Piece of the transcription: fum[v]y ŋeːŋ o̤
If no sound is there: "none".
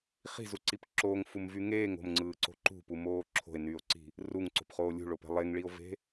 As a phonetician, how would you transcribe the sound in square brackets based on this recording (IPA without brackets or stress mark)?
v